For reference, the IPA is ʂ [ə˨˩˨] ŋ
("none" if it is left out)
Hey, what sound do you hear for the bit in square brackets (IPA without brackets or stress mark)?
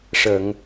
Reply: ə˨˩˨